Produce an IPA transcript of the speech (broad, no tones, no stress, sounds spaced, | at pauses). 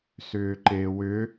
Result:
s ʏː ǃ e w ʏ